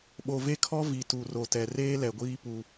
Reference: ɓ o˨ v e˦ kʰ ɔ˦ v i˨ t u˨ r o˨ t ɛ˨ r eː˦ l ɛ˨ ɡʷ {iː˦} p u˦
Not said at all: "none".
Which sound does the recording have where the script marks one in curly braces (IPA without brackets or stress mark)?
iː˦